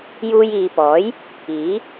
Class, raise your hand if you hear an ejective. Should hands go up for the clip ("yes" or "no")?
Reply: no